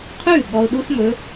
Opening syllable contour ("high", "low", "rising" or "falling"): falling